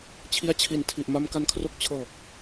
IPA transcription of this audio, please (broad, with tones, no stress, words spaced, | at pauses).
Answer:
t͡ɕʰi˦˥a̯t͡ɕʰi˨˩n tʰi˨˩ʔma˦˥m ka˦˥nkʰro˥˩k̚ t͡ɕʰɤː˨˩k̚